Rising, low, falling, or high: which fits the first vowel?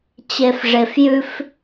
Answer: low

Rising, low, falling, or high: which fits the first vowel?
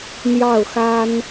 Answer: falling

